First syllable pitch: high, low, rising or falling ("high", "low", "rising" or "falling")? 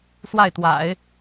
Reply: falling